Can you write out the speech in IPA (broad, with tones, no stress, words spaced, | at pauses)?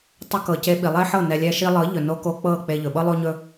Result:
tˤɵ˧kɤ˨ ce˧ɓi˨lˠe˦ħɤ˦˨ nɛ˨lʲɛ˧ʃi˧lˠɤ˨˦ ʎɵ˨no˧ko˧ k͡pɤ˦˨ k͡pe˧ʎɵ˨ɓɤ˦ lˠo˦ɲɵ˦